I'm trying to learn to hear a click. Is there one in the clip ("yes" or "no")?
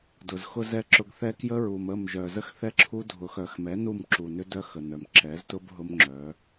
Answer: yes